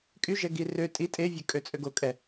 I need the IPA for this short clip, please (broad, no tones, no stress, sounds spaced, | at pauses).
kʼ y ʒ ɛ ɡ i r ø tʼ i tʼ e vʲ ø kʼ ø t͡sʼ ø ɡ o kʼ ɛ